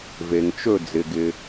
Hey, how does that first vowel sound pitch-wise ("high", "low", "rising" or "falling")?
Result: low